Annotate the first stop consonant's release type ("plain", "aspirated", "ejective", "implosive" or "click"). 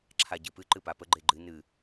click